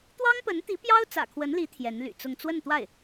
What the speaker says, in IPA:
t̪ w ɑ˥ ŋ p ə˧˥ n t̪ i˧˥ p j ɑ˥ ʊ̯ t͡s ä̰˨˩ kʰ w ə˧˥ n l i˧˥ t̪ʰ j ɛ˧˥ n l y̰˨˩ t͡s ʊ˥˧ ŋ t͡s w ə˥˧ n t̪ w a˥˩ ɪ̯

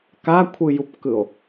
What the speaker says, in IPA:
k a kʷʰ ɯ j u p k ɯ o̯

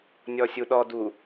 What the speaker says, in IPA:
nʲ ɔ sʲ u ɗ ɔ d u

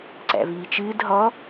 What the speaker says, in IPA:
ǀ æ̰ v iː t͡ʃ ɨː d ɦ ɔ

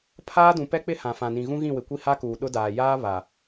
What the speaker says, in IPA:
pʰ aː˦ d ũ˨ p ɛ˦ k͡p ɪ˦ h ã˨ f ã˨ n ĩ˨ ɣ ũ˦ ɣ ĩ˦˨ w ɪ˨ kʷ i˦ h a˦ k uː˨ ɗ ʊ˦ d aː˨ j aː˦ β a˨

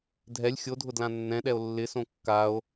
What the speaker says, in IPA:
dʱ ɛ lʲ xʲ o dʱ ʊ d l ã nː ɛ̃ ɗ ɛ o̯ lː ɪ s õ kː a o̯

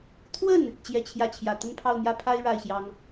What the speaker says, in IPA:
t̪ʰ w ə˥˩ n | t͡ɕ j ɛ˥˧ t͡ɕʰ j ä˥˩ t͡ɕʰ j ä˨˩ t̪ ə˥˧ n pʰ ɑ˥˩ ʊ̯ n̪ j ä˥ pʰ a˥ ɪ̯ ɻ a˥˩ ɪ̯ ɕ j ɑ˥ ŋ

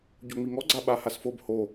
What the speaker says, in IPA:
ɟ o ŋ͡m i ŋ ɔ ɡ͡ǀ a ɓ a h a s f o b h o

